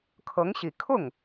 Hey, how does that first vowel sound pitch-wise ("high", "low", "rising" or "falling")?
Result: rising